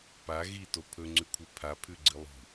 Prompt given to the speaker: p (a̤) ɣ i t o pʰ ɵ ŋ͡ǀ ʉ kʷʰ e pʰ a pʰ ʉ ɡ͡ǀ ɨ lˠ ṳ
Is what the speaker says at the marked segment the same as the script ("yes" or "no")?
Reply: no